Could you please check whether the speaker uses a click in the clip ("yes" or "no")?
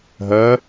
no